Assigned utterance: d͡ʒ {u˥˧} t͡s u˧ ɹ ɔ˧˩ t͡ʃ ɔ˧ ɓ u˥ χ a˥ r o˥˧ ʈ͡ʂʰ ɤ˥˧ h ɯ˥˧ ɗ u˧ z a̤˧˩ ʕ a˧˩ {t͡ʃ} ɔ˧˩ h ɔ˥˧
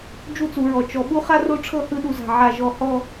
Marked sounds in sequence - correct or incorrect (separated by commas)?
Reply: correct, incorrect